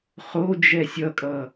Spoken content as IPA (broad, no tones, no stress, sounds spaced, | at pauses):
χ o d͡ʒ ɛ sʲ ʌ kʼ ʌ